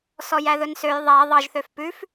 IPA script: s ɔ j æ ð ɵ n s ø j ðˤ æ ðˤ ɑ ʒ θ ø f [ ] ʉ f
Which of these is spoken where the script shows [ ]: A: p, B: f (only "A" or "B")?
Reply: A